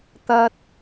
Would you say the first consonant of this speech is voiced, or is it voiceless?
voiceless